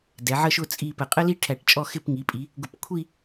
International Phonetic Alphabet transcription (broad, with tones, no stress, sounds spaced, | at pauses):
d ɛ˩˧ ʕ ə˥˧ ʃ ʊ˥˧ t͡sʼ i˥˧ p ə˧˩ qʼ ə˥ l i˥ ʈʰ æ˧˩ ʈ t͡ʃʼ ɔ˥˧ x ɪ˥˧ p ŋ i˩˧ pʼ i˩˧ | ɡ ʊ˧˩ p kʷʰ i˥˧